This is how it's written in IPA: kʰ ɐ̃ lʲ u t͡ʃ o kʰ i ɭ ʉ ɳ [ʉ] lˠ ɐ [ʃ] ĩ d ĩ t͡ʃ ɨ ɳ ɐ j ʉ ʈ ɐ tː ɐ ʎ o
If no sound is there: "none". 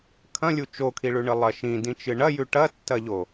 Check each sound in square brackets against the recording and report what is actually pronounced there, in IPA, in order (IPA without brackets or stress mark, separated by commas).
ɨ, ʃ